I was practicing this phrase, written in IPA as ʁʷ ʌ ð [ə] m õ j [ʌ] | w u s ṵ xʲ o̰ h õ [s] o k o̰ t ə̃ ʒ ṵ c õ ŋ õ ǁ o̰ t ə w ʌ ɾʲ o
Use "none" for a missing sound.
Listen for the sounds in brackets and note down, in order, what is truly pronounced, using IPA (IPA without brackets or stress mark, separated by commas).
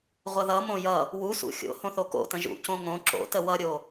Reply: ʌ, ʌ, θ